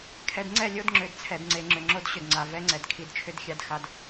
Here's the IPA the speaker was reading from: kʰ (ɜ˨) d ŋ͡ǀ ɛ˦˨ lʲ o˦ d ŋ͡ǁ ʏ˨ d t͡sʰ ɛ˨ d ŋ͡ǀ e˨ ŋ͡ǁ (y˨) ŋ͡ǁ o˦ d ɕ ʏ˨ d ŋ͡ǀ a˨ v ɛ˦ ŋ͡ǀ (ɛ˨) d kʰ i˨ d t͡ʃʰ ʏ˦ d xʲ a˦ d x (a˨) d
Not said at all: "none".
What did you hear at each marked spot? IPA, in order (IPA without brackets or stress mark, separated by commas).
ɛ˨, ʏ˨, ɛ˨, a˦